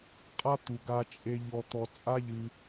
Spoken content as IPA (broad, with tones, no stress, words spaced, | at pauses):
qʼa˦t̪u˩ɡa˨ t͡ʃʼe˨ ʎɔ˨t̪ɔ˨t͡sʼa˥ ʎɨ˨